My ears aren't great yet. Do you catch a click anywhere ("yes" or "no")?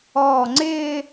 yes